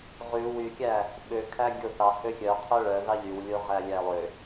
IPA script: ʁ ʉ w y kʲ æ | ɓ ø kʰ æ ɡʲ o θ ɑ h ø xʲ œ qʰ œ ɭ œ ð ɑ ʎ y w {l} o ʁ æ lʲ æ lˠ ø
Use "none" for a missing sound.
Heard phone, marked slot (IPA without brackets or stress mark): lʲ